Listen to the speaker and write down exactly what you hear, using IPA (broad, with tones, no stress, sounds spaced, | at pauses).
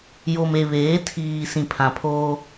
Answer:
j o˨ m e˨ β eː˨˦ tʰ iː˨ s ĩ˨ pʰ ã˨ pʰ oː˦